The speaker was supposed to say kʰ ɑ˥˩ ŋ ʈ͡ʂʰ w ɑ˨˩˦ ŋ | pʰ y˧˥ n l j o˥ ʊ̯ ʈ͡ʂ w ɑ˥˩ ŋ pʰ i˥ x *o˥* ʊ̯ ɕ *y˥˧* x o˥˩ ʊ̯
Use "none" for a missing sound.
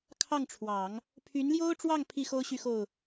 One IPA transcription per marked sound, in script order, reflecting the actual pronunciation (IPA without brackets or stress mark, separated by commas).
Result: o˥, y˥˧